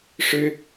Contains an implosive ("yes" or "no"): no